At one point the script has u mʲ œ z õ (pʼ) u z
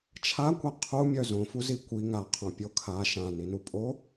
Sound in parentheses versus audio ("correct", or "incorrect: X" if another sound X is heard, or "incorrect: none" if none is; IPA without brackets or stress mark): incorrect: f